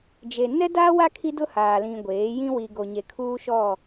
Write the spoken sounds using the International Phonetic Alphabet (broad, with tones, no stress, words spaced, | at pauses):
d͡ʒe˨ nɛ˦daː˦wa˦ kʰi˦dʊ˦haː˨lĩ˨ ɡʷeː˨˦jĩ˦ wi˨ɡo˨ɲe˨ kʰuː˦ʃɔ˦˨